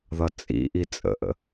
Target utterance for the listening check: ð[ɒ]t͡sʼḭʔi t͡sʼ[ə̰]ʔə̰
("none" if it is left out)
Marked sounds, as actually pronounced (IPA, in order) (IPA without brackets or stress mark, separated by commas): ʌ, ə̰